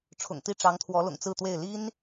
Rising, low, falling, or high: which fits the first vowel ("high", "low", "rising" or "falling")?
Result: low